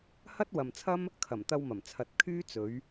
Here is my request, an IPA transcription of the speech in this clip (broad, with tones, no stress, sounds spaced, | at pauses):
h ɐ˥ t̚ w ɐ˨ m t͡sʰ ɐ˥ m | kʰ ɐ˨˩ m t̪ ɐ˧ w m ɐ˨˩ m t͡sʰ ɐ˨˥ t̚ kʰ yː˥ t͡s ɵ˨˧ ɥ